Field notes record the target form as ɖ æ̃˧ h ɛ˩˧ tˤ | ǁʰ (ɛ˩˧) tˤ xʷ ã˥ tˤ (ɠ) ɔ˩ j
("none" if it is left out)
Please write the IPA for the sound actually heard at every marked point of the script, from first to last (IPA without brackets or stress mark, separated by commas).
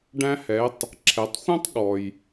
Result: ɛ˩˧, ɠ